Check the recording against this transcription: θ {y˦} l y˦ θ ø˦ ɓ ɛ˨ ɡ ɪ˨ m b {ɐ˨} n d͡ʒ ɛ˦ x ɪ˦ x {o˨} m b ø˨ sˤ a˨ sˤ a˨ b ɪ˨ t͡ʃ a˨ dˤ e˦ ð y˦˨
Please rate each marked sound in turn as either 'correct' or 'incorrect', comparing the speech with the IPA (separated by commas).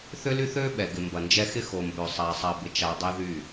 incorrect, correct, correct